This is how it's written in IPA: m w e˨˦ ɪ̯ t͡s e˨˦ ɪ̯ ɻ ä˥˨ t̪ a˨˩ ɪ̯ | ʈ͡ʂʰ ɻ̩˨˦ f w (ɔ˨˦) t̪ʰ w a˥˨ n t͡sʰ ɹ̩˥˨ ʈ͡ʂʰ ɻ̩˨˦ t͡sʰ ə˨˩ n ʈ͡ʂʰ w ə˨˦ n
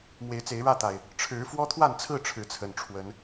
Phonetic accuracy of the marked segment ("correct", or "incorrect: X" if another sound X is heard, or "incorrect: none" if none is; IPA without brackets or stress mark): incorrect: ɔ˦